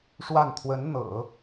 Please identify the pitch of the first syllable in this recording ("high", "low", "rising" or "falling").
falling